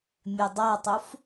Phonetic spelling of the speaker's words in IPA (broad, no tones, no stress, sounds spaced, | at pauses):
mʲ ø dˤ a tˤ u f